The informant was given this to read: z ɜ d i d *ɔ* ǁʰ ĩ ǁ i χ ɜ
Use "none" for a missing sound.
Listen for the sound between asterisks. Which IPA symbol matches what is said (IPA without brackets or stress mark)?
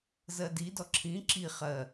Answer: ɔ